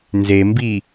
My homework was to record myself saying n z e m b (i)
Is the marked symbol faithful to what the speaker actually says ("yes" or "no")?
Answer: yes